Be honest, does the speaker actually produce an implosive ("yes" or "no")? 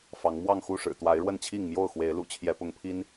no